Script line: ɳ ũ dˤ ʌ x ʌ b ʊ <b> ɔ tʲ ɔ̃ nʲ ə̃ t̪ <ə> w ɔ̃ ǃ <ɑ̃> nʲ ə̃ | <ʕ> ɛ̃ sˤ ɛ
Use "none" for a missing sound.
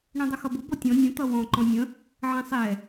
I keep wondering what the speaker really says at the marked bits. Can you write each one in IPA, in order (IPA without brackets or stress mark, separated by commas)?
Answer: b, ʌ, ɔ̃, ʕ